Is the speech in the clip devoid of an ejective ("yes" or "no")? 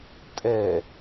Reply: no